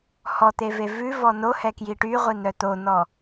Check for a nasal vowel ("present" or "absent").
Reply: absent